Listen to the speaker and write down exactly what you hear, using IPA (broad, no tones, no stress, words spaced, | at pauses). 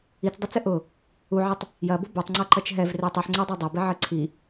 it͡sdˤat͡sɘ ʔʊ | uʕitˤ | jɐbʊ botˤŋ͡ǀaǃɐt͡ʃ ɦɛvre tˤɘħŋ͡ǀodˤɛ dˤabeʕɘ ǀʰi